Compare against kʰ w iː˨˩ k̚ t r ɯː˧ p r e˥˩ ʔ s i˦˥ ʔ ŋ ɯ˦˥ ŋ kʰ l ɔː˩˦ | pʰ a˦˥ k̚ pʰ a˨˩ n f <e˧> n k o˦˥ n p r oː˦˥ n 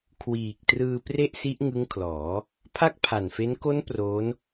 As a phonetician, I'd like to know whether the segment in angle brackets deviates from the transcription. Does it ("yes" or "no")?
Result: yes